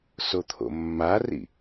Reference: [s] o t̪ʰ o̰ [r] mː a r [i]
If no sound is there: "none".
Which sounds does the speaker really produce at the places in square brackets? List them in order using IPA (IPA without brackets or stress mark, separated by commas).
s, none, ḭ